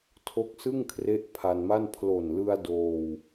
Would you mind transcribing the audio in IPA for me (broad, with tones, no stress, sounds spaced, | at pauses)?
tʰ o˦˥ k̚ s ɯ˥˩ ŋ kʰ r e˦˥ ʔ pʰ a˧ n m a˥˩ n pʰ l o˨˩ n l ɯ˧ a̯ d oː˧ w